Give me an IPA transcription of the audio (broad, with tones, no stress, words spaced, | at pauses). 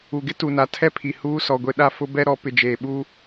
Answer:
u˨ɡɪ˦ tu˨na˨tʰɛ˦pʰi˨ huː˦sɔ˨ɡʷe˦ɗa˦ fʊ˦bɛ˦ɾɔ˨˦ pɪ˨d͡ʒeː˨ɓuː˦